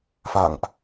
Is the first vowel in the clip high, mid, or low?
low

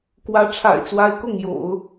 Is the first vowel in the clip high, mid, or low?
low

